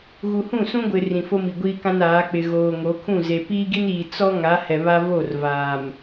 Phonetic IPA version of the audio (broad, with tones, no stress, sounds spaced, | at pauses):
ɣ u˨ h ũ˦˨ s ũ˦ ɡʷ ɪ˨ r ĩ˨ f o˦ m i˨ ɡʷ iː˦ k ã˦ n aː˨˦ k͡p ɪ˨ ɣ oː˨ ŋ o˨˦ kʰ ũ˦˨ z e˨ p iː˦ ɡ i˦ n iː˨ t͡s ɔ˦ ŋ a˨˦ h ɛ˨ β a˦ v o˦˨ r v aː˨ m